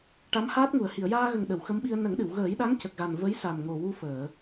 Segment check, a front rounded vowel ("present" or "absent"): absent